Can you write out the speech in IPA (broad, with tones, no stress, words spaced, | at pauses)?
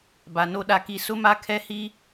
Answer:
ba˨no˦ɗa˦ki˦ sʊ˦ma˦kʰɛ˦hi˦